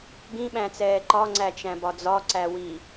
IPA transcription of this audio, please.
ɡ ĩ ɓ æ̃ t͡s ɛː ǃ ɒ ŋ͡ǀ æ t͡ʃ æ̃ b ɒ d͡z ɒ ǀ æ w i

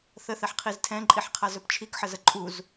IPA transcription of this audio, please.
θ ə θ ɛ ħ qʰ i z tʰ ɛ̃ ǃʼ i ħ qʰ a z ɵ p t͡ʃʰ i k ħ ə z ə ǃʼ u z

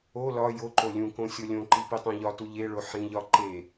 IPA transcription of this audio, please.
o l ɒ j o ǃ o lʲ ũ k õ sʲ o lʲ õ ǃ i p i tˤ õ ʎ ɒ t u ʎ e ɭ o ħ ĩ ʎ ɒ ǃ e

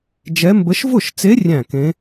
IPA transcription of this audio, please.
d͡ʒ ɛ˧˥ m b ə˧˥ ʃ v ʊ˥˩ ʃ t͡s e˧˥ rʲ æ̃˥˩ k ẽ˧˥

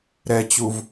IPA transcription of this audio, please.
ɾ ɛ t͡ɕ u v

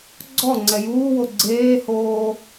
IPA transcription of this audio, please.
ɡ͡ǀ ɔ ŋ͡ǀ ɛ j uː w o ɡ͡ǀ eː h oː

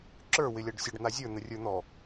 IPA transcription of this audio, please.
ǁ ə˞ w ɪ lʲ a ɖ sʲ ə ɖ n̪ a zʲ ə˞ n̪ ə rʲ ə˞ n̪ ɔ

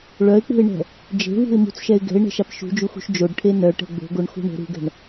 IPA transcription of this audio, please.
ɭ œ ɪ̯ k͡p ṳ ɪ̯ ɳ ɛ̤ | d͡ʒ e̤ v ṳ ɪ̯ m ṳ t͡s ʃ ɛ ɪ̯ ɡ ɛ̤ ɪ̯ ɳ ɛ̤ ʃ a p ʃ ṳ d͡ʒ u x ṳ ʃ d͡ʒ o ɖ ʈʰ e n œ ʈ ɛ̤ ɡ͡b o̤ ɡ o ɳ x ṳ ɳ o̤ ɾ ṳ ɡ ɛ̤ ɳ

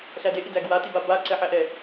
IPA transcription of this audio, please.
ɬ æ d e ʔ i d æ ɡ w a t i b a b a ǀ ɛ ħ æ ʔ ɛ

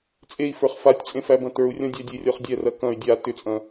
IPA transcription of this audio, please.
t͡sʼ e i̯ f ə˞ χ f a tʲ t͡sʼ ẽ f æ b ɐ̃ t ə˞ u̯ rʲ ɔ̃ dʲ æ dʲ e rʲ ɔ χ dʲ ɛ r ɐ k ɐ̃ y̯ dʲ a t ʏ t͡sʼ ɐ̃

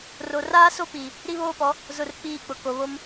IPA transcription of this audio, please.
r o˨ r aː˦ s o˦ p i˨ | ɾ i˦ β oː˦ p ɔ˨˦ | z ʊ˦˨ r k͡p iː˦˨ k͡p ʊ˨ k o˨ β o˦ m

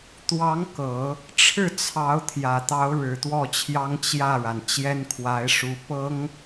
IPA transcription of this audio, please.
t̪ w ɑ˧˥ ŋ k ɤ˨˩˦ | ʈ͡ʂʰ ɻ̩˥˩ t͡sʰ ɑ˧˥ ʊ̯ t̪ʰ j ä˨˩ t̪ ɑ˧˥ ʊ̯ ɻ ɻ̩˨˩ t̪ w ɔ˥˩ t͡ɕʰ j ɑ˥ ŋ t͡ɕ j ä˥˩ ɻ a˩ n t͡ɕ j ɛ˥ n kʰ w a˧˥ ɪ̯ ʂ u˧˥ p ɤ˥ ŋ

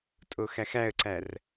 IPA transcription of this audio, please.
tʼ o x æ x æ ə̯ ǀ æ r

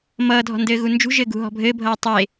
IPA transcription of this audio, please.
m ʌː dʱ ɔ̤ n d ɘː ɣ u n d͡ʒ ṳ ʒ ɘː ɡ ṳ ɦ ɔ̤ bʱ ɘː bʱ ʌː tˤ e

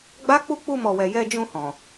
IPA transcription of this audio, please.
ɡ͡b a˦ k͡p u˦˨ k͡p u˧ m ɔ˨ w ɛ˨ j ɛ˧ d͡ʒ ũ˧ h ɔ̃˨

